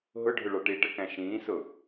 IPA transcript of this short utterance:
ɦ ʊ ɖʱ ʊ ɭ ɒ ʈ i ʈ ə k æ̃ ʃ ĩː s ʊ

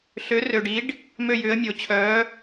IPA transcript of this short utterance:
ɬ ø˨˥ r ø˨ ɖ i˨˥ ɖ | m ø˥˧ j ʏː˨˥ ə̯ mʲ o˨ t͡ɕʰ œː˨˥

